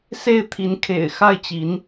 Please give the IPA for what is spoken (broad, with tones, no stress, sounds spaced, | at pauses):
s e˥˩ ɪ̯ t̪ʰ i˧˥ n kʰ ḛ˨˩ ɪ̯ x a˥˩ ɪ̯ t͡ɕ i˧˥ n